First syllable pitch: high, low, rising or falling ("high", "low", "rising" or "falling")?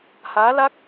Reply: rising